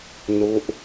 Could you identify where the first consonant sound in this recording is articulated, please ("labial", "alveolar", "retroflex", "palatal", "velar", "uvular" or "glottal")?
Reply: alveolar